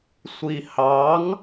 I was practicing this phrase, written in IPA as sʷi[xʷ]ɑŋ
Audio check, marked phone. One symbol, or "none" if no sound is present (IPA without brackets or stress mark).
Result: h